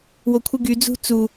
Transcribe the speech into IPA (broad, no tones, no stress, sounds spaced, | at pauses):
w o kʷʰ ɯ ɡ y d͡z ṳ t͡s u